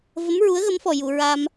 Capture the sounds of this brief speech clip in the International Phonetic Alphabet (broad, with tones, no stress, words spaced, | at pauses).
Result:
və˧˥mɹu˧˥ə̯ ɣə˧˥mfɔ˨˩ju˨˩˨ ɹa˧m